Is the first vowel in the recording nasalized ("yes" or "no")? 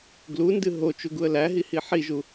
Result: no